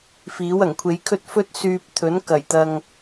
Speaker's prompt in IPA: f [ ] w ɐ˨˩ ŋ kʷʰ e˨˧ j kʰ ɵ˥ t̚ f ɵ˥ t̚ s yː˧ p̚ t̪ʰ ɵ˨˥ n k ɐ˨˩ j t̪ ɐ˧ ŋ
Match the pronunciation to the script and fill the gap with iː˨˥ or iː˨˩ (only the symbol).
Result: iː˨˥